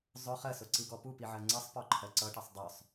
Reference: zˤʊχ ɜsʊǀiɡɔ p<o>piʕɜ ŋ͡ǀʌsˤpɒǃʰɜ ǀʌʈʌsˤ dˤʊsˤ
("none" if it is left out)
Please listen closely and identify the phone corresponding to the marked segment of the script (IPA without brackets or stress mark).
u